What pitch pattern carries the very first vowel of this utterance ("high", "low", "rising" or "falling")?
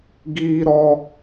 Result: high